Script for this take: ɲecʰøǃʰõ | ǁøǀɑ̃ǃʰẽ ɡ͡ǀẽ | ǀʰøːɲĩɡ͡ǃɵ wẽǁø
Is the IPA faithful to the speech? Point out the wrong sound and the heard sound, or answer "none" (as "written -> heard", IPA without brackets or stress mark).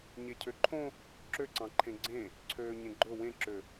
ĩ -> ẽ